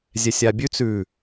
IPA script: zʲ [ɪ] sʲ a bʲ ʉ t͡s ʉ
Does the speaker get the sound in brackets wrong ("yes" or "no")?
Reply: yes